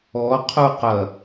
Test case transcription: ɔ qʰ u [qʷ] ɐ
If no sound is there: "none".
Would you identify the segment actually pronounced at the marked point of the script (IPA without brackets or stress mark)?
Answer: q